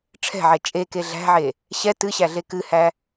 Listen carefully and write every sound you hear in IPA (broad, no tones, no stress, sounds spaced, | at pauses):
ʈ͡ʂʰ ɛ̤ ʕ ɛ t͡ʃʼ e k e ɮ æ̤ ʕ e | ɕ ɛ t ɨ ɕ æ ɮ e k ɨ h æ